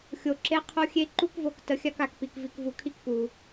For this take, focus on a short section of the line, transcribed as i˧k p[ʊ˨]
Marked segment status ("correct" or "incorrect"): incorrect